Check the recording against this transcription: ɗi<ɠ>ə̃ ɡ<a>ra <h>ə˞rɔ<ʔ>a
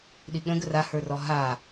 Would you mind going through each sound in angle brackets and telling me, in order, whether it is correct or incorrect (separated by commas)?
correct, incorrect, correct, incorrect